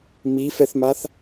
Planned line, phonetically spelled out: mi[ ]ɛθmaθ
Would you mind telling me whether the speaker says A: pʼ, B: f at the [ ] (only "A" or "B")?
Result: B